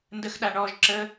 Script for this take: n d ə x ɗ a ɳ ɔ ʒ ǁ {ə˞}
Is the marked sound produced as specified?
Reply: no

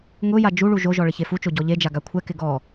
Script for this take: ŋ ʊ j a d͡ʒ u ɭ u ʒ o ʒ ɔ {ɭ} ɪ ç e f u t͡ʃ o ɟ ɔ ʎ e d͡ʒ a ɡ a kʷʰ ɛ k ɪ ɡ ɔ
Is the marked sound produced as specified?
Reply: yes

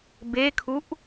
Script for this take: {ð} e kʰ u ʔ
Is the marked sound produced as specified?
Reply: no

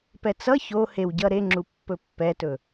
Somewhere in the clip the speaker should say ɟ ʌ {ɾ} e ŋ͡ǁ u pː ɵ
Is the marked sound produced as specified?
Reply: yes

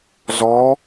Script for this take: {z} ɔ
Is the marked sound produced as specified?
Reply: yes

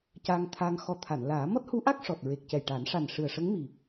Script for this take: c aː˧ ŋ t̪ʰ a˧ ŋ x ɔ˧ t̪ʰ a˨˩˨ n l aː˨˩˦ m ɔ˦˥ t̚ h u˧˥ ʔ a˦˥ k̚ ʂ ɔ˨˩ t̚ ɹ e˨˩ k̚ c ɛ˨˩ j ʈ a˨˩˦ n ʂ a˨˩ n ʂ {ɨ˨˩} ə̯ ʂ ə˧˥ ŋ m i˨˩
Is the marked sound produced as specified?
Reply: yes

